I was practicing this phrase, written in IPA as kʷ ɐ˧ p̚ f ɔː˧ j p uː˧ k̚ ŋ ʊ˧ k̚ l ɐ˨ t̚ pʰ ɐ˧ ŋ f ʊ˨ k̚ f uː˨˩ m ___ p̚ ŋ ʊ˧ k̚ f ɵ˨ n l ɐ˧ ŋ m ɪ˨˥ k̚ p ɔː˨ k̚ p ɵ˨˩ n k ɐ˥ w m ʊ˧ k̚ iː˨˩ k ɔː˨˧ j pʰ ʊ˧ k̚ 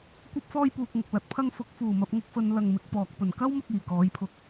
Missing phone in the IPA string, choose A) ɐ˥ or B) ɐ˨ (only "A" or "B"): B